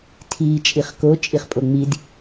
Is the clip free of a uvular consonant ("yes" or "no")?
no